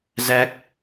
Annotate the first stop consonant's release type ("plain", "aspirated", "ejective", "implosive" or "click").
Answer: plain